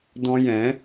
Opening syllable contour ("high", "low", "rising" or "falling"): high